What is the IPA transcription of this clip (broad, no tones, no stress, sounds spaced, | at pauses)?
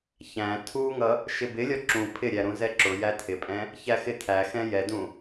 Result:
ç æ̃ tʰ u ŋ ʌ | ʃ ɪ b ɪ lʲ ɒ ǁ ũ pʰ ɪ ɾʲ æ ɾ ũ z ɛ ǁ ʊ j æ tʰ ɪ pʼ ɛ̃ | ç æ x ɪ tʰ æ x ɛ̃ j ɛ d ũ